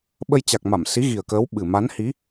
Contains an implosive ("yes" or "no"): yes